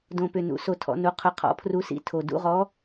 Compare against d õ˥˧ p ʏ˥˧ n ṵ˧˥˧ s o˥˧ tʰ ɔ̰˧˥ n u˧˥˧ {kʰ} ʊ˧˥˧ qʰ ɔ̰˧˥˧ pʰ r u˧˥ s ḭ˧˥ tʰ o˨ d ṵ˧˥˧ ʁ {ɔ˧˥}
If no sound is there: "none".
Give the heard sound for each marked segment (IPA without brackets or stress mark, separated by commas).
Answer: qʰ, ɔ˧˥